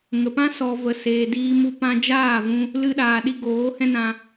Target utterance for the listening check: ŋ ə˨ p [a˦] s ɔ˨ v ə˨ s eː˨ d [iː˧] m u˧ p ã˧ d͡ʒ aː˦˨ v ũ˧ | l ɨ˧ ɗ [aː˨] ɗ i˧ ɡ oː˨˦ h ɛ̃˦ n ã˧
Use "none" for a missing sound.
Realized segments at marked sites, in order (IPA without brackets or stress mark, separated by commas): ã˦, iː˧, aː˨